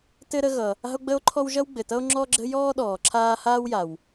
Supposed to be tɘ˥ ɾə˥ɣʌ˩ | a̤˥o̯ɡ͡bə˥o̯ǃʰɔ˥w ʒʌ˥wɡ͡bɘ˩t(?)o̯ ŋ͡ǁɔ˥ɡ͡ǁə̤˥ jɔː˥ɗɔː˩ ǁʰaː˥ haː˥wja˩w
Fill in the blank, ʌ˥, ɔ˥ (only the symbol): ʌ˥